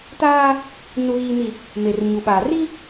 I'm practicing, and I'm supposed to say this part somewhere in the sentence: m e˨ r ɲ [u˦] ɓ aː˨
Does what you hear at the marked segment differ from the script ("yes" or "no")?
yes